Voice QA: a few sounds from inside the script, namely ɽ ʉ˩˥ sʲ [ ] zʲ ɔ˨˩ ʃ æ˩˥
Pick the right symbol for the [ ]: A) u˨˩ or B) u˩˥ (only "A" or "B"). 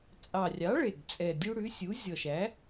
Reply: B